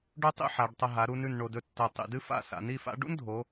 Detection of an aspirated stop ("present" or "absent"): absent